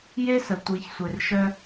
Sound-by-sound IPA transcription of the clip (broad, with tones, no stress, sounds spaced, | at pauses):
j e˦ s ə˨ tʷ i˨ ç sʷ e˨ r ʃ œ˧